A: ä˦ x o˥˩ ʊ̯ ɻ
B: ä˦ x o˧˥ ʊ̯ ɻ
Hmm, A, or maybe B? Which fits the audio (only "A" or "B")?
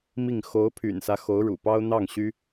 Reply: B